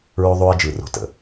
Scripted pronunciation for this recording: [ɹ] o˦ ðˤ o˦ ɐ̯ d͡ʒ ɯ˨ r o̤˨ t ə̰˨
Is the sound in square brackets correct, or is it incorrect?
correct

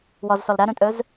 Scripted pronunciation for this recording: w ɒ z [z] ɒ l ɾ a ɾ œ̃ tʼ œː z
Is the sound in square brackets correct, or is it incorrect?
incorrect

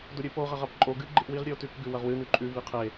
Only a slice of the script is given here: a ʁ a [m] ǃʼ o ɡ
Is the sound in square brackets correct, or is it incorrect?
incorrect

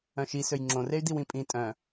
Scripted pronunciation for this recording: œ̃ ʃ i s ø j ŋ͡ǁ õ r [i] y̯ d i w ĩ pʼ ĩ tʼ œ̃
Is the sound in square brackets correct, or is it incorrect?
incorrect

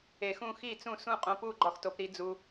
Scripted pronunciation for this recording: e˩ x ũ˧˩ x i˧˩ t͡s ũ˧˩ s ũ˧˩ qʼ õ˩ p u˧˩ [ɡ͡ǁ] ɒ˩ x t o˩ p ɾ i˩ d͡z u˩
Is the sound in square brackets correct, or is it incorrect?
incorrect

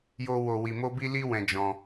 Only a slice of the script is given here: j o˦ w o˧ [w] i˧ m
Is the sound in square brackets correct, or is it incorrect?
correct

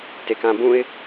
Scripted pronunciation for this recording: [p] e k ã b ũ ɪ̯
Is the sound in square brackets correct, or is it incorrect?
incorrect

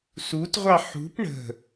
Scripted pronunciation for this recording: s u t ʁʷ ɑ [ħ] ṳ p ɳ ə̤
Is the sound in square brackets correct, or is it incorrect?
correct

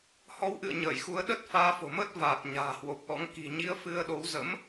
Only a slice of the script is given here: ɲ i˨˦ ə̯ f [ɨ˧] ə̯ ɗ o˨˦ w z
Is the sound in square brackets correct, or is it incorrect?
correct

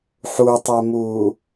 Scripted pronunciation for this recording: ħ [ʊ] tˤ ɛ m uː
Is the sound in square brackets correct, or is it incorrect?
incorrect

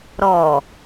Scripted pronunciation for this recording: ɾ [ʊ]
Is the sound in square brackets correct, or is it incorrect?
incorrect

